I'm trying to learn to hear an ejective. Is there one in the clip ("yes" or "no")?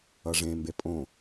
yes